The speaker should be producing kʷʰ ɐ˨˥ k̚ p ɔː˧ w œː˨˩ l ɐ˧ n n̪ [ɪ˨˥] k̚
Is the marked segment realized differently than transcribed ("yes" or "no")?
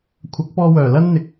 yes